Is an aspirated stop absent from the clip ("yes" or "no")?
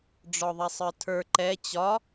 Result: no